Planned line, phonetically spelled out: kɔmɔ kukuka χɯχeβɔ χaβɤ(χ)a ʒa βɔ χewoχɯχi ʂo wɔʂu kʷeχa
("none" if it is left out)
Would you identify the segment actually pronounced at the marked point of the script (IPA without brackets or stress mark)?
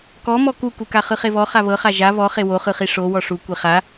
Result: χ